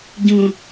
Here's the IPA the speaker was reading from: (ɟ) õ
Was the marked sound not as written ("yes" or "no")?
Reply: no